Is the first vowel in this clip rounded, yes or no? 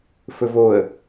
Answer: yes